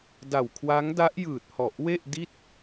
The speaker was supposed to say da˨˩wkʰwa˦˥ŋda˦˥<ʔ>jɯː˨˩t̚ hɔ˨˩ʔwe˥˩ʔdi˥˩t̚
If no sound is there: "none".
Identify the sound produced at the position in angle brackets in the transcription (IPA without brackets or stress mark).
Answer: ʔ